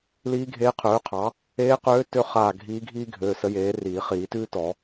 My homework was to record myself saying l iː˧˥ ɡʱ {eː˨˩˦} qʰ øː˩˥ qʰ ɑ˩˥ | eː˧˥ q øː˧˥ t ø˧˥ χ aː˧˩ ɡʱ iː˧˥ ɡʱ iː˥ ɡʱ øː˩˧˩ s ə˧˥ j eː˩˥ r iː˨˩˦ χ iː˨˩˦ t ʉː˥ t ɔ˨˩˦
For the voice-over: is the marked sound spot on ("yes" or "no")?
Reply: no